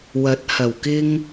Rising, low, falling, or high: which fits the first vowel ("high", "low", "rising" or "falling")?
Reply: rising